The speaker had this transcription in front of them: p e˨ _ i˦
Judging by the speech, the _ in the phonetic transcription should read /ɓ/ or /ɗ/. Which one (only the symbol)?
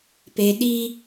ɗ